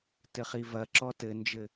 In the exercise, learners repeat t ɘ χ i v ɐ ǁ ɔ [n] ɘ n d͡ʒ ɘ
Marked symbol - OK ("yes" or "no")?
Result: no